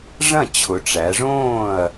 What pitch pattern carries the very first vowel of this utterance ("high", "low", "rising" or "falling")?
falling